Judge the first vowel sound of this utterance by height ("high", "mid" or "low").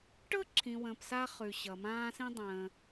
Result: mid